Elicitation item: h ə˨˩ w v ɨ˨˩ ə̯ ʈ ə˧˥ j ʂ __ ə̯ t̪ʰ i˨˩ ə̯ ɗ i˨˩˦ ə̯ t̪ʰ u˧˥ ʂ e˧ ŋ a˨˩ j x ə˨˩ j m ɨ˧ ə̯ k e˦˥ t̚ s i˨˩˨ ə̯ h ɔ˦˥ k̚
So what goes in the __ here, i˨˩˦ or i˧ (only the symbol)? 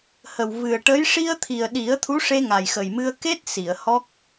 i˧